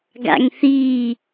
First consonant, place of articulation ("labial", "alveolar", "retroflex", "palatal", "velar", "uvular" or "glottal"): velar